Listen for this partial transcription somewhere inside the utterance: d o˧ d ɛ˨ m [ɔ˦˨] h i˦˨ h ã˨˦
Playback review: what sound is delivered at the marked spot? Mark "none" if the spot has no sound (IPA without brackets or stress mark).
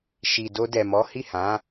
ɔ˨˦